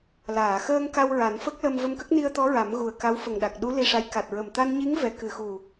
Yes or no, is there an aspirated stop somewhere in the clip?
no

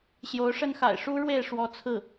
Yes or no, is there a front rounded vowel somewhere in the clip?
no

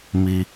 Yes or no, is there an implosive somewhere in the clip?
no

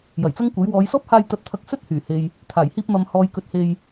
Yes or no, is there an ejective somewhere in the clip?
no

